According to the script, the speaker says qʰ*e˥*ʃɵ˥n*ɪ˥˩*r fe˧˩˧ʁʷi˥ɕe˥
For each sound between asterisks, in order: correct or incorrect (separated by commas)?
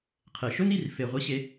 incorrect, incorrect